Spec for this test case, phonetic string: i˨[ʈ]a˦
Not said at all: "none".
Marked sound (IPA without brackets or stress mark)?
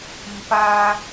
p